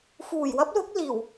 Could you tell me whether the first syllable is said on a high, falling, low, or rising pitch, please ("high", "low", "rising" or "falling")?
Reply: low